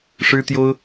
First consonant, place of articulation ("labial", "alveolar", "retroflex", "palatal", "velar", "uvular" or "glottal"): retroflex